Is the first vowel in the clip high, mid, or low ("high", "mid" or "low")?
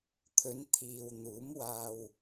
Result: mid